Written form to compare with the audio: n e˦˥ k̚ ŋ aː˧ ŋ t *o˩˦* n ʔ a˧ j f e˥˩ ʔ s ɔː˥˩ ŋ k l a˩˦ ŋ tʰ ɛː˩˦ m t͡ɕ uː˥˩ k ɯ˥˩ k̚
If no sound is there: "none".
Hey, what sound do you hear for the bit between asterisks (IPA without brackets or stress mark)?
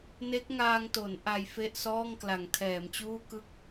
o˩˦